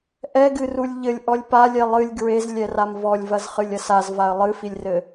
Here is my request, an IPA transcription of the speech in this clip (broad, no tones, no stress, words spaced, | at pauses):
ʔɛɡɨrulʲ ʎɘlʲʔɔlʲ palʲɛ lˠɨlʲ ɡɹezlʲɛram vɔlʲvɐzχɨlʲɐs azvaə̯ lˠɨfilʲrɘ